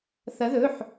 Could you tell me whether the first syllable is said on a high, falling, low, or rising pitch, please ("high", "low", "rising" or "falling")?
rising